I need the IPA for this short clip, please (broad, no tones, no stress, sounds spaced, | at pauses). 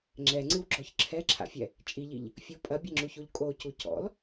ŋ͡ǁ ɛ ŋ͡ǀ ɨ w ɡ͡ǁ ɔ ç ǁʰ ɛ ǁʰ a̰ fʲ ɛ | t͡ʃʼ i ʎ i ʎ | fʲ o pʼ ɐ bʲ ɐ ŋ͡ǁ u ç o ʎ kʼ o c u c ɔ̰ l